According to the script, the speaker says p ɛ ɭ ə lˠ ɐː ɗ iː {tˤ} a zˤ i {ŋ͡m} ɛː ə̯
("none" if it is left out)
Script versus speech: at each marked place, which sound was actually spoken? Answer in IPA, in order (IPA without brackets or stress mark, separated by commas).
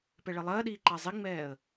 ǃ, ŋ͡m